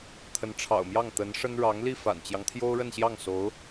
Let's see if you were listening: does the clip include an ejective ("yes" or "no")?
no